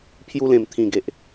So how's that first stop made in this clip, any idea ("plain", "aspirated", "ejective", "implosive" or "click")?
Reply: aspirated